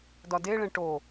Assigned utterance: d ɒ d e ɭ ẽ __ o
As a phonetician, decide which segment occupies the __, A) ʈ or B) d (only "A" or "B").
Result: A